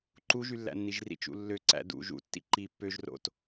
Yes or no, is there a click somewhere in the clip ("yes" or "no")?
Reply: yes